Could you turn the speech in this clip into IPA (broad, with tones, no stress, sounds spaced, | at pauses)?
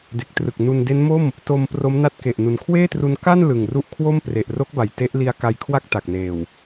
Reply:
d e˨˩ k̚ t r ɯ˨˩ k̚ n u˧ n d e˦˥ n m o˥˩ m | t o˧ m p r o˦˥ m n a˥˩ t̚ k e˨˩ ʔ n u˨˩ n kʰ w eː˥˩ t r u˧ n k a˥˩ n l ɯ˨˩ ŋ r u˦˥ ʔ kʰ w o˥˩ m p r e˨˩ ʔ r o˦˥ k̚ b a˨˩ j t e˦˥ ʔ l i˦˥ a̯ k a˧ j kʰ w a˥˩ k̚ t a˨˩ k̚ n eː˨˩ w